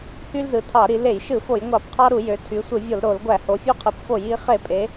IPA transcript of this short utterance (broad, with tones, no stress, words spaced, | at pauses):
hy˦lzɯ˩˧ tʰɑ˧˩˧ɾi˩˧ le˧˩˧jʃɯ˧˩˧ fo˧˩˧jŋʷɑ˧˩˧pqʰɑ˦ɾu˧˩˧ jø˩˧tʰy˩˧sʷɯ˧˩˧vʲo˧˩˧l ɾo˧˩˧l ɡʷæ˧˩˧ho˩˧fʲo˦qʰɯ˩˧p fo˧˩˧ji˩˧ χe˧˩˧pʼe˩˧